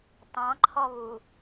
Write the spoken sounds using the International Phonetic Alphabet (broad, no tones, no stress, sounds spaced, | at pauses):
t ɑ̃ ǃʰ ɔ β u